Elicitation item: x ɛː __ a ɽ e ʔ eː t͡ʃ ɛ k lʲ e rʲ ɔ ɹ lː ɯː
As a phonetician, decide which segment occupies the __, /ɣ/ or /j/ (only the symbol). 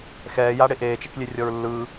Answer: j